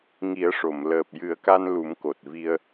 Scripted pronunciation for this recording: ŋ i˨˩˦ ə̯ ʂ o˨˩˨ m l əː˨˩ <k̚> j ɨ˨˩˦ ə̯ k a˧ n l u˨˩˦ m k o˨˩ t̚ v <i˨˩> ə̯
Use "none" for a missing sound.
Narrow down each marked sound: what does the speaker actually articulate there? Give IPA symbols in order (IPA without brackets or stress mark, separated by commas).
p̚, i˧